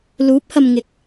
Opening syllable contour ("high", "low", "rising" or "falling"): rising